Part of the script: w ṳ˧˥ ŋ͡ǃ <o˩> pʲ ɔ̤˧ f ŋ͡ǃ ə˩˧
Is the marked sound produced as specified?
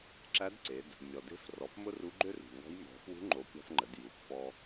no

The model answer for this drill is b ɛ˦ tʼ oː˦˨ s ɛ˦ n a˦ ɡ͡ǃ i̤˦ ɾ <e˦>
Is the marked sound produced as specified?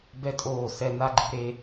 yes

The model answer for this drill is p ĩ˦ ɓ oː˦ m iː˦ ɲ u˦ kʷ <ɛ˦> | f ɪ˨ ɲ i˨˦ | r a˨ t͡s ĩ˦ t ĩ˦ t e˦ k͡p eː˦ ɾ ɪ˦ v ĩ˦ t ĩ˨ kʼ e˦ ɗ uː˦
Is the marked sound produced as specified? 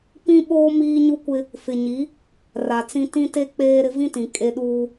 no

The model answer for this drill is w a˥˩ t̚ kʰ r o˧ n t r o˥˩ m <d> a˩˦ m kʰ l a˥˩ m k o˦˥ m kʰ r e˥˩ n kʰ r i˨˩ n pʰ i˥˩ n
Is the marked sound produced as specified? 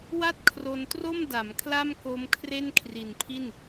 yes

